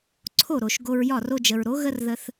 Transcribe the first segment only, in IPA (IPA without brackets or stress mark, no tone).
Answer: ǀʰ